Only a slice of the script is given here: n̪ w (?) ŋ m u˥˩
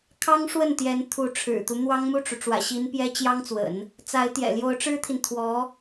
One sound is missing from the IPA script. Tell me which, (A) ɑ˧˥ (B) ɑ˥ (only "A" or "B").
B